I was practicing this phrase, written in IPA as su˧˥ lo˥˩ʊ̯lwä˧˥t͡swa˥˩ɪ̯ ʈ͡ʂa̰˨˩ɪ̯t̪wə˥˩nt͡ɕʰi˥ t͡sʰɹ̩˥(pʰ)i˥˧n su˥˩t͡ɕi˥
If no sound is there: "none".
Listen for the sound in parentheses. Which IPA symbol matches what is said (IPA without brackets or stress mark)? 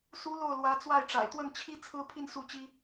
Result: pʰ